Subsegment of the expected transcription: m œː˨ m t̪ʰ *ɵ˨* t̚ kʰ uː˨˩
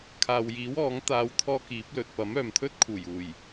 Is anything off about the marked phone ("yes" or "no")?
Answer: yes